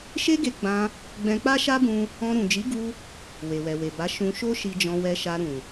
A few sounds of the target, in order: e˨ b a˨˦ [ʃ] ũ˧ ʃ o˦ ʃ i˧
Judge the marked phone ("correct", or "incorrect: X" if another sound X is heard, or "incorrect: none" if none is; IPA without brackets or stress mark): correct